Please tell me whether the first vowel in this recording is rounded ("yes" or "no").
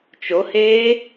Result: yes